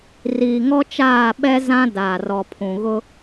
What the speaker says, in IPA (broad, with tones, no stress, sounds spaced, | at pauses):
r iː˨ ŋ ɔ˦ t͡ʃ aː˦˨ ɓ ɛ˦ z ã˦ d aː˨ r ɔ˨ pʰ ũ˨ ɣ ʊ˦